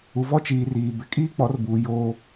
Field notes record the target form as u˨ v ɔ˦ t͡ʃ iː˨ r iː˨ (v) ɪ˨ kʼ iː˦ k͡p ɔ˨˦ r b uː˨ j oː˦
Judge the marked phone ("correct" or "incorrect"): incorrect